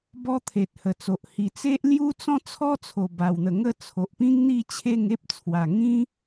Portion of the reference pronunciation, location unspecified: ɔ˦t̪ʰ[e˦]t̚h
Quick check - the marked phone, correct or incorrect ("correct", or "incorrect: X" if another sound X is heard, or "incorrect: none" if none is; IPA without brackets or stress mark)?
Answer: incorrect: e˨